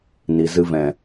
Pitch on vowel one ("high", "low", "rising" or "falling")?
low